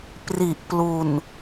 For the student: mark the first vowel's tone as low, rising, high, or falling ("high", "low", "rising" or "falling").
low